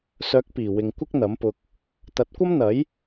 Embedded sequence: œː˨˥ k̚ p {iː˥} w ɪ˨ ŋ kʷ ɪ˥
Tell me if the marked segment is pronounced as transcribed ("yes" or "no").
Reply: no